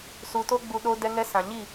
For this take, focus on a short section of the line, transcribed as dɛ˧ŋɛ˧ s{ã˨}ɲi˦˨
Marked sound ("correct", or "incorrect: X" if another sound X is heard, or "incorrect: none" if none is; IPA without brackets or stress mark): correct